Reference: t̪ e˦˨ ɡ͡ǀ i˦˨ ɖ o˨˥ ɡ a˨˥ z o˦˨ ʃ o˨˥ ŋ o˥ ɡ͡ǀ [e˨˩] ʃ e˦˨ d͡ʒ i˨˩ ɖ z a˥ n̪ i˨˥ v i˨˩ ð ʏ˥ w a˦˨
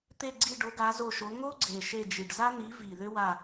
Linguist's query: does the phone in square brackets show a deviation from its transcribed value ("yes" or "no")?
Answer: no